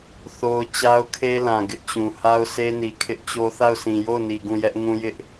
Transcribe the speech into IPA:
θo˦ʊ̯ t͡ɕa˦ʊ̯kʰe˦lã˨ ɡɪ˦ʔt͡ɕũ˨ ha˦ʊ̯se˦ni˨ kʰɪ˦ʔt͡ɕo˦ θa˦˨ʊ̯sĩ˨ jo˦˨ʊ̯ni˨ ɡũ˦˨ jɛ˦ʔ ŋũ˦jɪ˦ʔ

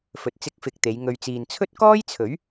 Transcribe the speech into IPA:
fɵ˨t̚ t͡sɪ˧k̚fɪ˨˥k̚t̪e˨˧j ŋɵ˨ɥt͡siː˨nt͡sʰɵ˥t̚ kɔː˥jt͡sʰɵ˨˥ɥ

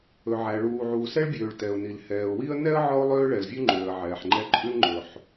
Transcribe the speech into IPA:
ɵ˩ʕæ˩ ɭuː˩ʕuː˩sɛ˥ɭbʲøː˩ɭ tɛ˩ʊ̯ni˩l hɛː˩ʊ̯wi˥ə̯ nɛ˥ə̯ ʕɔ˥ʊ̯lˠøː˥ ɭɛ˩lvʲʉ˥ŋ͡ǃøː˩ə̯ ʕɛː˩ħŋ͡ǃɛ˥ ǃʼʉ˥lŋ͡ǃɵ˩ħ

